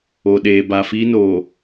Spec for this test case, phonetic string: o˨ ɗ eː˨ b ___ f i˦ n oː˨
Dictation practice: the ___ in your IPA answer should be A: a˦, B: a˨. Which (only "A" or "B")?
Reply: B